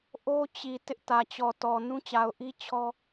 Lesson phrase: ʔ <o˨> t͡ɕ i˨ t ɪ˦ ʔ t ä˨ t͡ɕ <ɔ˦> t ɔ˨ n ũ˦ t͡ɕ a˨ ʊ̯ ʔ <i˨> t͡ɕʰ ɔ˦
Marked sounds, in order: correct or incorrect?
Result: incorrect: o˦, incorrect: ɔ˨, incorrect: i˦

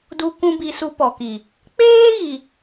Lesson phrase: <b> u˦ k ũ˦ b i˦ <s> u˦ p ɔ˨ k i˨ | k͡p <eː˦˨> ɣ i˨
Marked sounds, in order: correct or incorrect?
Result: incorrect: d, correct, incorrect: eː˦

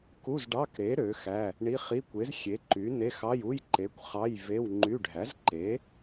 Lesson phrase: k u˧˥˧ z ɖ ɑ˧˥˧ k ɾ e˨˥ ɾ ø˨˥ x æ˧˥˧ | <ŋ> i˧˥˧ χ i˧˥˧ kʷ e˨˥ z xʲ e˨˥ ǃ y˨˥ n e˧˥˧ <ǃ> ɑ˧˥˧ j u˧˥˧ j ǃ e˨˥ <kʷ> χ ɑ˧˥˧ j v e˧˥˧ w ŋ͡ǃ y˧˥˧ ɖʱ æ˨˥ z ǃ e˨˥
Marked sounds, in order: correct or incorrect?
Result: incorrect: ɳ, incorrect: x, correct

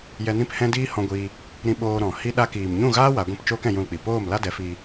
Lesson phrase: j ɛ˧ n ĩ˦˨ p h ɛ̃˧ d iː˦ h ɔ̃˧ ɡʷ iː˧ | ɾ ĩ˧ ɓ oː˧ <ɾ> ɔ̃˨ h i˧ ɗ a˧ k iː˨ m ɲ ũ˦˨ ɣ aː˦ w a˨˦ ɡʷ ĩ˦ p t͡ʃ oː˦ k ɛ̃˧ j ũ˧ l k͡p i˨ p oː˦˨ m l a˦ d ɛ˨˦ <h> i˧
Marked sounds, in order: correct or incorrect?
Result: correct, incorrect: f

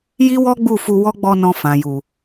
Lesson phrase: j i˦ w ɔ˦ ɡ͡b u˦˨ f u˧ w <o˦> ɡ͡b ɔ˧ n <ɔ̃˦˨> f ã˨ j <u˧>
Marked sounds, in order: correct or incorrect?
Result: incorrect: ɔ˦, incorrect: ɔ̃˧, incorrect: u˨

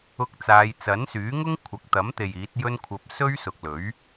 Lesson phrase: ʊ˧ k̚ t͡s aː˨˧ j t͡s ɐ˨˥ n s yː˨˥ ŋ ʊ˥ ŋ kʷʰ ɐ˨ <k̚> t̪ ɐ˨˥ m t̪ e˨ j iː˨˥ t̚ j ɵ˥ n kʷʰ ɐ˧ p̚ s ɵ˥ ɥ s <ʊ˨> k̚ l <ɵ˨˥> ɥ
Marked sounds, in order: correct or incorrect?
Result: correct, correct, correct

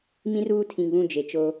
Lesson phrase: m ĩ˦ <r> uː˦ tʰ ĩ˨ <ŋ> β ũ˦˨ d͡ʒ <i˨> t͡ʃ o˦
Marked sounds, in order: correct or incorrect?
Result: correct, correct, incorrect: e˨

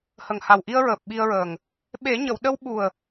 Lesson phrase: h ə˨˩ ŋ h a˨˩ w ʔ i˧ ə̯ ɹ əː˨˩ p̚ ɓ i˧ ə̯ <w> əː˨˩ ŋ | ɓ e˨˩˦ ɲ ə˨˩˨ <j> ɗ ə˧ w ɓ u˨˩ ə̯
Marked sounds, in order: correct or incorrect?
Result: incorrect: ɹ, incorrect: w

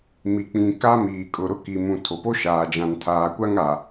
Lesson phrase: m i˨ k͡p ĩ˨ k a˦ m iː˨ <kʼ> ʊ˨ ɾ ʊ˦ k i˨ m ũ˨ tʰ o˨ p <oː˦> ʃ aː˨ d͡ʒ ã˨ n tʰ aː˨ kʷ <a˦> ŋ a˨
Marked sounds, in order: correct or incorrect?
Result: correct, incorrect: o˦, correct

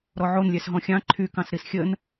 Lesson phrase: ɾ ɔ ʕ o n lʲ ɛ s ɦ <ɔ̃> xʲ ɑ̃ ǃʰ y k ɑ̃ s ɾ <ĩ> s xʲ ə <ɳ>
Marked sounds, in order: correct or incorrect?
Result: correct, incorrect: i, incorrect: n

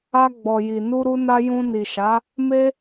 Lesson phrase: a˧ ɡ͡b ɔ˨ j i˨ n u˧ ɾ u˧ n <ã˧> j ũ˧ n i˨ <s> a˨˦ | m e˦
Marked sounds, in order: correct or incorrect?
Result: incorrect: a˧, incorrect: ʃ

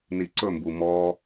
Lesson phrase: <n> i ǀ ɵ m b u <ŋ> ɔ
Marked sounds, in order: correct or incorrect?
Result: correct, incorrect: m

